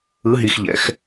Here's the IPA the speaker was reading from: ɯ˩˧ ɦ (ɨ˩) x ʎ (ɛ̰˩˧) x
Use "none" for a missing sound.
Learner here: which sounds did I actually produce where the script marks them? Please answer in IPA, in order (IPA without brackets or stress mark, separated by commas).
i˩, ɛ̰˩˧